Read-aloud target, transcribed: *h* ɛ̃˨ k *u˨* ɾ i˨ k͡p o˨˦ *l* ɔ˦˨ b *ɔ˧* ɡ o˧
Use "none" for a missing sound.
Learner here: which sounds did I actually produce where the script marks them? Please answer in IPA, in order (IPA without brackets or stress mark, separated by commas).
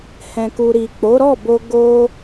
h, u˨, ɾ, o˧